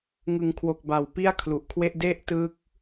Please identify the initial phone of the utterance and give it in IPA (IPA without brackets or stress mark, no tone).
ŋ